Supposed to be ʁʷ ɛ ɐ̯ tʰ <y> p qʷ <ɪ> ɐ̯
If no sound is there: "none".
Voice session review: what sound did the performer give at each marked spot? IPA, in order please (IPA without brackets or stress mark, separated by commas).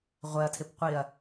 ɪ, i